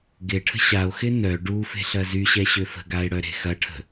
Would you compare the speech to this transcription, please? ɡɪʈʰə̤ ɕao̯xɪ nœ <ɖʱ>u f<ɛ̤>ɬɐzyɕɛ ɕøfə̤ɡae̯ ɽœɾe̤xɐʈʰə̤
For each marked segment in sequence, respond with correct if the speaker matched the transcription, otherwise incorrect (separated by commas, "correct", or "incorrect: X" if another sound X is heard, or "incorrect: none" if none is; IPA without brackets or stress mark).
incorrect: ɖ, incorrect: e̤